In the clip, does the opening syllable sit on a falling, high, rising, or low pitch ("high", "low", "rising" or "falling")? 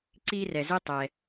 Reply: high